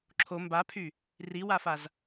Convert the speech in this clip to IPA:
ǁʰ o m b a pʰ y | r i w a f a z

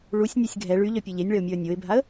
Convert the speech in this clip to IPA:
ɭ u sʲ nʲ œ sʲ ɡʱ ɛ ɭ y ʎ œ pʲ e ʎ e nʲ ɭ ɛ ʊ̯ mʲ ɔ ə̯ nʲ o ɪ̯ bʱ a ə̯

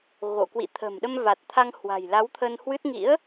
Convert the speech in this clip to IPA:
ɣ o̰˧˨ k w ḭ˧˨ t̪ʰ ə̤˨˩ m ɗ ə˧ m v a˨˩ t̚ t̪ʰ a˧ ŋ h w a̤˨˩ j l a˨˦ w t̪ʰ ə˧ n h w ɨ˦˥ t̚ ŋ ḭ˧˥ ə̯

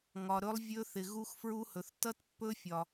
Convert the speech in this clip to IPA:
ŋ ɒ˨ ɾ ɵ˦˥ lˠ vʲ ɵ˦˥ θ ɪ˨ ɣ u˦˥ x f ɹ u˦˥ h ɵ˨ θ t ʌ˦˥ t pː ɵ˦˥ fʲ ɒ˨

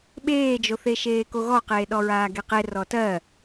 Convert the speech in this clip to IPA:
ɓ eː d͡ʒ o θ e ʃ eː k o ɣ ɔ q eː ɗ ɔ ɹ aː ɡ e q e r ɔ t ɜ

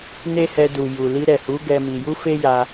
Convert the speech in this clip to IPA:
n e˦ h ɛ˧ d u˨ j u˨ l i˧ ɾ ɛ˨ h u˨˦ ɡ ɛ˦ m i˧ j u˦ f e˦ j a˧

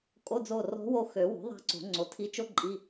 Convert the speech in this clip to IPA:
kʼ o˧˥˧ d͡z o˦˨ r ɔ̤˧˥ w o˦˨ x ø˨˩˦ w o̤˩˥ ðˤ a̤˦˨ ǀ o̤˨˩˦ ŋ͡ǀ o˩˥ tʰ i˧˥ t͡ʃ o˥ ǃʼ i˧˥˧

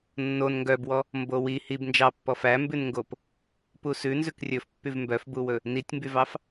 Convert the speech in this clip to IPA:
nː o n ŋ ɡ œ b w ɔ | m b o w i h i b n d͡ʒ ɑ pː ɔ f æ m b ʉ n ŋ ɡ o p | p u s ʉ n z ʉ k rʲ ɵ f pː y v m b œ f b u w ɵ | n i tʲ m b y v ɑ f

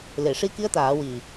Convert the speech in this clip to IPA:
l e˨˩˨ ʂ i˧ k i˧˥ ə̯ t̪ aː˨˩˦ w i˨˩

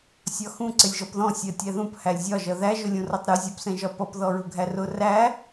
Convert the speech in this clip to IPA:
sʲ ɒ x ũ ǀ ɪ lʲ ʒ ɔ p ð ɔ̃ sʲ ɜ tʲ æ ð ũ p h æ lʲ zʲ ɒ ʒ ʌ ð æ ʒ ʊ lʲ ũ r ʌ tˤ ɾ u zʲ ɔ p s ɛ̃ ʒ ɒ p ʌ p ð ɔ ɹ ʊ ɡʱ æ r ʊ r æ

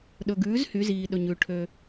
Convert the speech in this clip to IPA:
ɗ ɵ˩ ɡ ʉː˩˥ z h y˩˧ z iː˩ ɗ ɵ˩ ɲ ʉ˩ ʈʰ ø˩

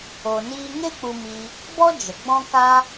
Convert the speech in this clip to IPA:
o˨ n iː˧ ŋ e˦ k͡p u˧ m i˧ | b ɔ˦ d͡ʒ ə˨ ɡ͡b ɔ̃˦ k a˦

